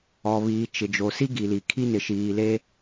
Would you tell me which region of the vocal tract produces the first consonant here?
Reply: lips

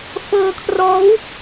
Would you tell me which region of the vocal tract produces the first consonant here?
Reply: lips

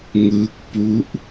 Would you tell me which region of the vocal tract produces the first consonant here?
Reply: velum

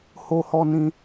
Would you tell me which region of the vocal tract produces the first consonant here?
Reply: throat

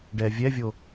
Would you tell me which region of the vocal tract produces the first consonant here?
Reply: retroflex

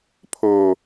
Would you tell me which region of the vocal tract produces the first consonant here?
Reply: lips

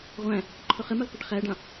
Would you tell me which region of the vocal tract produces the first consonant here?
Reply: uvula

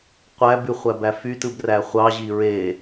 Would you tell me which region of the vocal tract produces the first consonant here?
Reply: uvula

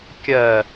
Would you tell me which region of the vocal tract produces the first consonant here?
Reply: velum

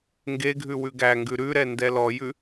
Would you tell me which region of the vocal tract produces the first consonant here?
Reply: velum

